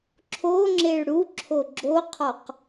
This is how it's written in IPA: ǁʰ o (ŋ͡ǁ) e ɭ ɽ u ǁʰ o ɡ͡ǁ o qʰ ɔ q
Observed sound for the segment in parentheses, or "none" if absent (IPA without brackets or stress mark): ŋ͡ǁ